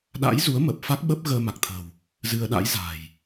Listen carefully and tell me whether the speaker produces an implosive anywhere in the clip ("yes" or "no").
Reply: yes